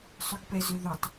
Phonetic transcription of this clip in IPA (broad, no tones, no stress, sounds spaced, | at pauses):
sˤ ʏ ɡ p ɛ z ʏ ð ø tˤ